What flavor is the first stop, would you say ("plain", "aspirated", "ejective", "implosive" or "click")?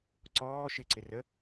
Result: click